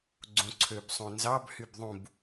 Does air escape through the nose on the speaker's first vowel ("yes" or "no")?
yes